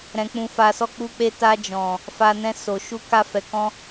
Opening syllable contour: low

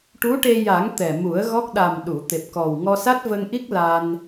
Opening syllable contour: rising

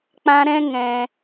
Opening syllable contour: high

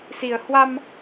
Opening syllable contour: low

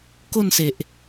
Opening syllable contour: falling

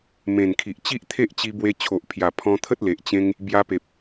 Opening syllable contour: low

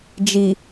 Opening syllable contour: low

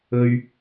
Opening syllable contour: high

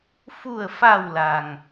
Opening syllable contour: low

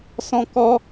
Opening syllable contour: high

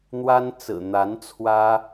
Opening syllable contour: high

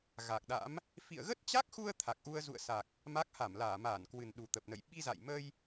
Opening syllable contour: low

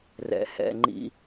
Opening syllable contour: low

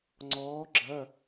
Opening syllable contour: rising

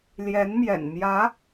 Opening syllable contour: rising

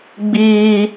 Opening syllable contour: high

